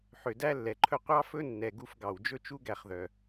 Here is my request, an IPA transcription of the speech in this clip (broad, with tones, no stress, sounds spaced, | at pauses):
ħ ø˨ d æ˦ lː ɛ˨ ǃʰ ɵ˦ qʷ ɑ˦ f ɵ˦ nː ɛ˨ ɡ u˦ f ɡ ɑ˨ w d͡ʒ ɵ˦ t͡ʃ u˦ ɡ æ˨ χ ð œ˨